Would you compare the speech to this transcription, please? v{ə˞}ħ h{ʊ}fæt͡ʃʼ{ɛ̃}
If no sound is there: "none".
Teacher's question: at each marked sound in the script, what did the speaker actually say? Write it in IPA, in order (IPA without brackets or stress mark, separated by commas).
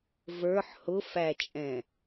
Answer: ə˞, ʊ, ɛ̃